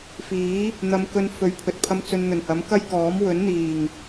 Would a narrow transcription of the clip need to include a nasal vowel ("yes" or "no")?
no